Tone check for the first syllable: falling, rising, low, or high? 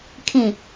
low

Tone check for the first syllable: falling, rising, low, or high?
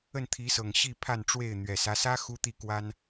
falling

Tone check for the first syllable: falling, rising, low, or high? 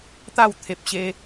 falling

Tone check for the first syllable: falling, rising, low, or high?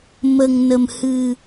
low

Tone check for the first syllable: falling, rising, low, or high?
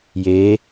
rising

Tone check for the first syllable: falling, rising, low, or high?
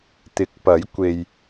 rising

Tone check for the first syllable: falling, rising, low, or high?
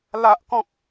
high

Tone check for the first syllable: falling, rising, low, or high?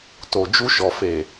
low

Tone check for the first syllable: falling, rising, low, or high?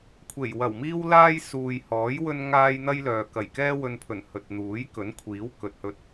low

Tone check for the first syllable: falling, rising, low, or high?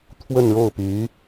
falling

